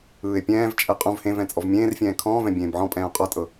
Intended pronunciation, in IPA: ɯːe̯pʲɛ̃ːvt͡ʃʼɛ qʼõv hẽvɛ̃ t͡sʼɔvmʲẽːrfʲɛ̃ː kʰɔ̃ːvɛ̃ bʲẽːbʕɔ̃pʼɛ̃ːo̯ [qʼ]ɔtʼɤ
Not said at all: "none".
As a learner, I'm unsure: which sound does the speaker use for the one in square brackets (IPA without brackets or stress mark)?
qʼ